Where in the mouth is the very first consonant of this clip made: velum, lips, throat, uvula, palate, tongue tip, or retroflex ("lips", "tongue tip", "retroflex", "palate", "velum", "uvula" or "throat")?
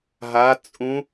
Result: throat